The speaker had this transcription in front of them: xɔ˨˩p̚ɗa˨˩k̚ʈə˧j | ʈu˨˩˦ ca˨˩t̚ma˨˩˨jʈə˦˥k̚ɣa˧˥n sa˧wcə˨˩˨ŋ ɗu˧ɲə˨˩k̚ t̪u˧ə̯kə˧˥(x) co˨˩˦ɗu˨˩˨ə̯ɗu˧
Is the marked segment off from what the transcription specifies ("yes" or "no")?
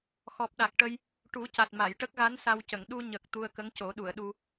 yes